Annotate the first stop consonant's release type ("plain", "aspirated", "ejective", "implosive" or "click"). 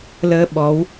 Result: implosive